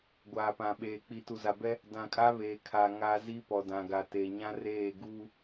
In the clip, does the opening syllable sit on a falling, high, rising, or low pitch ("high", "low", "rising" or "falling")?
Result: low